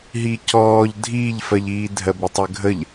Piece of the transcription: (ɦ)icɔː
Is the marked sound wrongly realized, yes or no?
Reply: no